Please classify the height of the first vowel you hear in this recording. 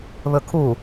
mid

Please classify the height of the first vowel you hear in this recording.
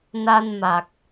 low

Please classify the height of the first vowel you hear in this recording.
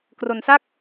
mid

